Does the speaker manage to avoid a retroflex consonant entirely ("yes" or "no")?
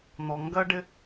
no